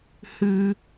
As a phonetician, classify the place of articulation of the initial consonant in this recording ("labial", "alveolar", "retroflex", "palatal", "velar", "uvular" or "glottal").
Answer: glottal